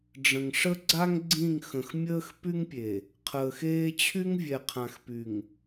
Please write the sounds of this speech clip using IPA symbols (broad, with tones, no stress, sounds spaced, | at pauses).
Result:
ɖ͡ʐ ə̃˨ ŋ ʂ ə˦ ɡ͡ǀ a˦ ŋ ɡ͡ǀ ĩ˦˨ ŋ x ə̃˨ x mʲ əː˦ x p y˦ ŋ pʲ e˨ | qʰ əː˨ x eː˦ t͡ɕʰ y˦ ŋ vʲ ɛ˨ qʰ ã˨ x p y˨ ŋ